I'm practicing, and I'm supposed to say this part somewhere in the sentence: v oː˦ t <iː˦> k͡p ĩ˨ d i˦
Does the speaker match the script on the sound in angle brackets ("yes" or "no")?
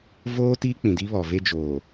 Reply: yes